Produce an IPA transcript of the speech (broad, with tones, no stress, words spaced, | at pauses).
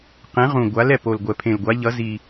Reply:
qẽ˨˥ʁũ˨˩ɡʷa˨˥l ɛ˨˩po˨˩lɡʷɛ˨˩ pʰẽ˨˩lɡʷa˨˥ʎʌ˨˥zi˨˩